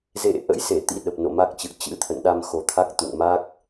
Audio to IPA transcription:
z ḛ˧˨ ʔ ə̰˧˥ j s e˧˩ t̪ ḭ˧˥ ɗ ə˨˩ p̚ n o̰˧˨ m a˦˥ k̚ t͡ɕ ɨ̰˧˨ ə̯ t͡ɕ ɨ̰˧˥ t̪ʰ ə̰˧˨ n ɗ a˧ m x o˨˩ t̪ʰ a˦˥ k̚ t̪ ṵ˧˨ ŋ m a˦˥ k̚

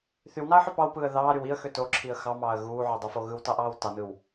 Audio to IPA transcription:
θ y w n ɑ ə̯ ħ ø p ɑ w p ɯː ə̯ ð ɑː ɾ y w i ə̯ x ø t o ǁʰ i ə̯ x ɑ m ɑː ə̯ ɣ uː ʕ o dˤ u f o ɣ ɯ w t ɑ ʔ ɑː w t ɑ n ɯ w

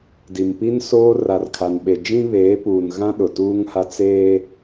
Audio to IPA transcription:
d i˨ m p i˦ n s oː˦ r a˨ r kʰ a˨ n ɓ e˨ d͡ʒ ĩ˦ β eː˨˦ p uː˨ n ɣ ã˦ ɗ ʊ˨ t uː˦ ŋ h a˦ t͡s eː˦

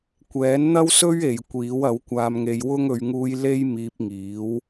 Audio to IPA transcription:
kʷ ɛː˨˥ n n̪ ɐ˥ w s ɵ˥ ɥ e˨ j kʷ iː˨˥ w ɐ˨˥ w kʷ aː˧ m ŋ e˧ j w ʊ˥ ŋ ɵ˨˧ ɥ ŋ uː˧ j l e˥ j m iː˧ p̚ ŋ iː˨˥ w

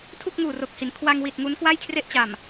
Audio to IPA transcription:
tʰ u˥˩ k̚ ŋ uː˨˩ r o˨˩ k̚ h i˩˦ n kʰ w a˧ ŋ w i˨˩ t̚ ŋ u˦˥ n k w a˥˩ j kʰ r e˥˩ ʔ t͡ɕ a˨˩ m

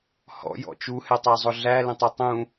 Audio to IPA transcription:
h ɔ̰ j ɔ̰ t͡ʃ u h ɛ tˤ æ zˤ ʊ ɮ æ l ə̃ tˤ ʌ tˤ ũ

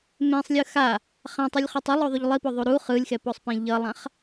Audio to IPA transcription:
m ẽ sˤ lʲ ɯ x a | χ ã tˤ i lʲ χ o tˤ u lˠ o ðˤ u ʎ lˠ i p o ðˤ u ɾ u χ ɯ lʲ x ɛ p o sˤ p ẽ ʎ ʌ lˠ ã χ

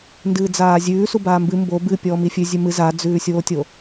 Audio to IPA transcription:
n d ɨː d͡z aː zʲ ʉː s u b aː m b ɨ m b o b ɨ pʲ ɔː m i fʲ ʉ zʲ ʉ m ɨ z a d͡z ʉː sʲ oː tʲ o

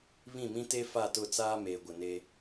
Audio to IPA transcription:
β ĩ˦˨ m ĩ˦ t e˦ f a˦˨ t ʊ˦˨ t͡s aː˦ m eː˨ ɡʷ ɪ˨ n e˦

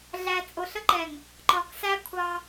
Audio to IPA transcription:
ɮ æ˨ t͡sʼ ʊ˨ ɬ ə˦ ǃ ɛ˨ ŋ | ǃ ɒ˨ k s æ˦ kʷʰ ɑ˦

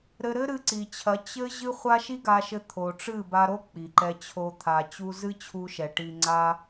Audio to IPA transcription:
ɾ ɘ˧ ɾ ɘ˦ ɾ ɨ˧ ǀ i˨ t͡ɕʰ ɐ˨˦ t͡ɕ ɘ˦ ʑ ɨ˦ χʷ a˦ ʃ i˦ ɡ a˧ ʃ ɘ˧ t̪ʰ o˨ ʈ͡ʂ ɨ˦˨ b a˧ ɾ o˦ k͡p i˨ ǃ ɛ˧ t͡ɕʰ o˧ t̪ʰ a˨ t͡ɕ u˧ z ɨ˦ t͡ɕʰ u˧ ʃ ɛ˨ ʈ i˧ ŋ͡ǀ a˦

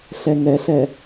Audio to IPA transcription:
ɬ ɛ ŋ ɛ ɬ ɛ

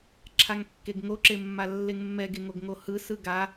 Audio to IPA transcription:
ǁʰ a ŋ kː e ɡ ŋ o ǁ e mː a lː e ŋ mː ɛ ɡ e ŋ o ɡ ŋ o h ɯ s ɯ ɡ a

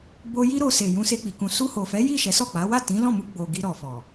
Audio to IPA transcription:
b o˧ j i˦ ɾ o˧ s e˨ j ũ˧ s e˧ k͡p i˨ k ũ˨ s u˧ h o˨ f ɛ˨˦ j i˦˨ ʃ ɛ˨˦ s ɔ˦˨ k͡p a˨˦ w a˦˨ t ĩ˨˦ l ɔ̃˦˨ m u˧ ɡ͡b o˨ ɡ i˧ ɾ ɔ˨ f ɔ˨

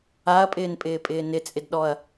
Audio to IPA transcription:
a ɐ̯ pʼ ɪː n pʼ ɪː pʼ ɪː n ɪ t͡sʼ ɪ d ɗ ɔ ɐ̯

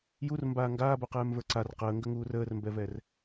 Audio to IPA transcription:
j u r m b aː ŋ ɡ aː b o q ɛː m v ə˞ ǀ a r q əː ŋ ɡ ə ŋ uː r əː r m b ɛ v ɛ r

